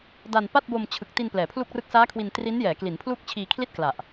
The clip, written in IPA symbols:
da˧npa˥˩t̚ bo˧mt͡ɕʰɯ˨˩k̚ti˧n plɛː˩˦pʰlu˥˩k̚rɯ˥˩k̚ saː˦˥kʰwi˧n tri˦˥njɛː˩˦kli˩˦npʰlu˥˩k̚ t͡ɕʰiː˧kʰli˥˩t̚ kla˨˩ʔ

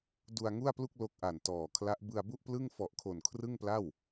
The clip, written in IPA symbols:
du˧a̯ŋu˥˩a̯plu˥˩k̚ lo˦˥k̚ʔa˨˩ntɔː˨˩kʰla˦˥ʔ bɯ˧a̯bu˥˩ʔplɯ˥˩ŋfɔ˨˩ʔ kʰo˨˩n kʰrɯ˥˩ŋpla˥˩w

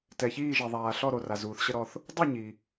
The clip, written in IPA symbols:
tɛ˩çiː˥˨ʒi˩ ðˤaː˩ ɬɔ˥˨ɾo˩ra˩zuː˩θ ɕə˥˨ɾɔ˥˨θ | dˤu˥˨ɲi˩

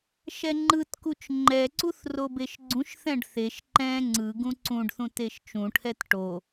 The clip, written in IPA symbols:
ʃɛŋ͡ǃɯtkut͡ʃ ŋ͡ǃɛǀuθ robeʃɡ͡ǀũʃθɛ̃ɖ θeʃ ǃɛ̃ ŋ͡ǀɯ ɡũǀũɖθũt eʃt͡ʃũʈʰɛt ʈo

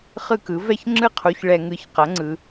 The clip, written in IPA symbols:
χɯ˥˨kɯ˨˥ vɛ˥˨çŋ͡ǁɯ˥˨qʰu˨˥ç ɭɛ˧ŋɯ˧ç qʌ˨˥ŋ͡ǀɯ˧

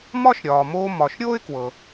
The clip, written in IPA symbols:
mɒ˥ʃɾʲɒː˩moː˧ mɒ˩ʃ ɾʲoː˥ɪ̯kwɤ˩

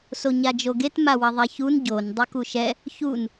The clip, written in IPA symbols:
soɲad͡ʒoɡet mawɐðˤɛçun ɟon dˤukuʃɛ | çun

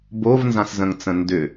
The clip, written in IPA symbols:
bovnzãszə̃ŋt͡sə̃ ndʏ

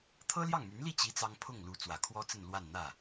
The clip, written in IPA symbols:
t̪ʰɤ˥ljɑ˥˩ŋmy˧˥n li˥˩t͡ɕi˧˥ t͡sɑ˥ŋ pʰʊ˥˩ŋlu˧˥ t͡swä˨˩kʰwɔ˥t͡sə˥˧n lwa˥˧nn̪ä˥˩

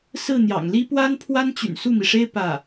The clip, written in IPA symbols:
sɹ̩˥˩n̪jɑ̰˨˩ŋli˥ pwa˥npʰwa˥nt͡ɕy̰˨˩n su˥˩mi˩ʂe˥ɪ̯ pä˥˩

